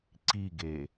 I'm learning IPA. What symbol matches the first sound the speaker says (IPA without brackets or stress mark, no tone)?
ǀ